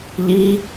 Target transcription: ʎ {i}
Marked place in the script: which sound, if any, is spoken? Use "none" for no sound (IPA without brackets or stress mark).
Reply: i